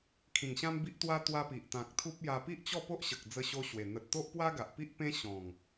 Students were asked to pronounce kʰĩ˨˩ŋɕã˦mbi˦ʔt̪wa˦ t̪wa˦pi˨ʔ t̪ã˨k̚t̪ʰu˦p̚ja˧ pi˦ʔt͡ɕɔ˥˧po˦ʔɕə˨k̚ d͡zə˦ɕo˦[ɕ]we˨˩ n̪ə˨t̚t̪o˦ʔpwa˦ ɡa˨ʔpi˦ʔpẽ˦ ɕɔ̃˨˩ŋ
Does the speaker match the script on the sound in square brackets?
yes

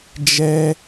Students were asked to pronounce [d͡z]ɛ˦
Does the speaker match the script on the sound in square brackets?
no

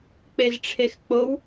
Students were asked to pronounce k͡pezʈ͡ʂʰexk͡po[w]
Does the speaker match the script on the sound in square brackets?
yes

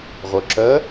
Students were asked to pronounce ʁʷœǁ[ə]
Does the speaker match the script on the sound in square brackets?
no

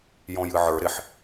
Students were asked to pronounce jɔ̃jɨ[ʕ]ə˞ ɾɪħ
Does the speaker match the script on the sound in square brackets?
yes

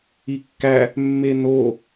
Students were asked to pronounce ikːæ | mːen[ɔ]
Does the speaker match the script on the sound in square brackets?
no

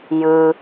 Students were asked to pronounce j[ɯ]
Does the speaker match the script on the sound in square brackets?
yes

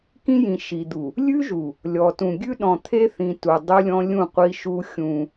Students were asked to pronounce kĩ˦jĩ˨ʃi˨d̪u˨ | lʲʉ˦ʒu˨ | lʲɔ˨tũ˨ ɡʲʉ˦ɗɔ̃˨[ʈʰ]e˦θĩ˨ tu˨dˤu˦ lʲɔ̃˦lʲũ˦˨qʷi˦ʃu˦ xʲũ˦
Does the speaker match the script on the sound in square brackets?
no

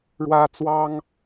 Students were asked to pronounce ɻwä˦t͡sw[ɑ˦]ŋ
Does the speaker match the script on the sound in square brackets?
yes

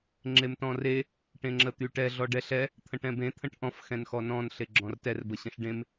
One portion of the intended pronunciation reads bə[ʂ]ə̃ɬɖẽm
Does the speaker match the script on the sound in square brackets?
no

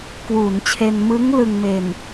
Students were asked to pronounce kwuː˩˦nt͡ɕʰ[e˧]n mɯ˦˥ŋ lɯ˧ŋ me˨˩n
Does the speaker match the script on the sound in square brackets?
yes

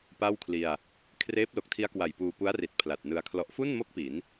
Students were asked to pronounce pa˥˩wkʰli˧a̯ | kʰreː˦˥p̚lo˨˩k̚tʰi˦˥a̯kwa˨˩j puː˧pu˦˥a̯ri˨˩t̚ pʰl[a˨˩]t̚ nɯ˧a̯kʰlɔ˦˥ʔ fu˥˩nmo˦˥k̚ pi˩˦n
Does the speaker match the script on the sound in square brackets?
yes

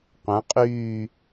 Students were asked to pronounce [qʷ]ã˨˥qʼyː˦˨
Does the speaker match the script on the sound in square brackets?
yes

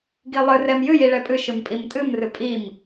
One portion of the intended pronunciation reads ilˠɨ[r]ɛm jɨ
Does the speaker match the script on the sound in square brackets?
yes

